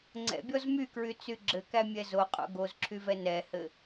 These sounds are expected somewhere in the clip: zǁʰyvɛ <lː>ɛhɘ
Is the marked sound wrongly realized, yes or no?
yes